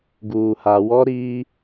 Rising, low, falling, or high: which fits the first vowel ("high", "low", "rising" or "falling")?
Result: low